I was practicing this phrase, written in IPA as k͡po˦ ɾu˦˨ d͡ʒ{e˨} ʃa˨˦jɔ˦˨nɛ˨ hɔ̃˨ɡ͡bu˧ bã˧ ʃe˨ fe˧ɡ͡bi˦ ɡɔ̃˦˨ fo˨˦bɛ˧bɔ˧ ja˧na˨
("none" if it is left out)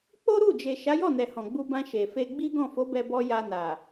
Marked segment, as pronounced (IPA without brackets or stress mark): e˨